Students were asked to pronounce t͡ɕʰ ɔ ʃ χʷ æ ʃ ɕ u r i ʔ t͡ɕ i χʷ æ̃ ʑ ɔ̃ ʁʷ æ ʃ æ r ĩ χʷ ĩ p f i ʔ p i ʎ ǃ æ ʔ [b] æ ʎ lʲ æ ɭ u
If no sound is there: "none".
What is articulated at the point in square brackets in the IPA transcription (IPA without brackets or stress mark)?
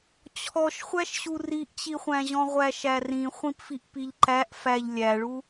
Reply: f